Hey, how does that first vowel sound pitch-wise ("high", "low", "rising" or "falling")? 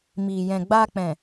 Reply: low